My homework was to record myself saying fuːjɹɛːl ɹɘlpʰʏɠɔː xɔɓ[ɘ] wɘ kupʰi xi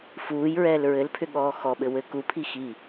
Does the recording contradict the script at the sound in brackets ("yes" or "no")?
no